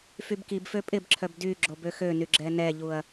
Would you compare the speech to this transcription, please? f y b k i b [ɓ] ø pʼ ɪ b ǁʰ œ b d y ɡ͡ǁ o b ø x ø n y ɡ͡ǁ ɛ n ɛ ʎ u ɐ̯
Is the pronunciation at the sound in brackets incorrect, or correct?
incorrect